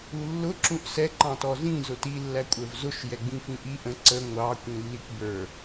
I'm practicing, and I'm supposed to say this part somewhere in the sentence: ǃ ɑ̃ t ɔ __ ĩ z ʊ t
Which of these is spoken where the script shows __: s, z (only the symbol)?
z